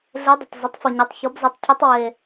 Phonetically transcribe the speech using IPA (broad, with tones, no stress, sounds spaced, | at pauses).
ɮ e˧˥ dˤ ɪ˩ tˤ z ɪ˩˥ tˤ f ʊ˩ ɲ e˩˥ tˤ ç ɔ˩˥ b z e˩˥ tˤ cʰ u˧˥ tˤ w e˩